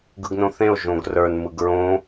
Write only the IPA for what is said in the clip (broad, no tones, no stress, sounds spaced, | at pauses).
ɡ ɯ ɡ n õ θ ẽ o̯ ʒ õ ɡ r ə˞ n m ɯ ɡ ɹ õ